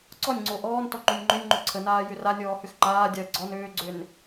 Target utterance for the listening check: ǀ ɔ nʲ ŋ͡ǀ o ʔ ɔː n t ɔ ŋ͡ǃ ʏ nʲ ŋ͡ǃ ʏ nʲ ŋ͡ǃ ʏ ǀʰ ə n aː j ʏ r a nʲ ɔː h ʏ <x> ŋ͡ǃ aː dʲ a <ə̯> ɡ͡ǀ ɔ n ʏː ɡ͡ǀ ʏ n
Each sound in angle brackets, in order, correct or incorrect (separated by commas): correct, correct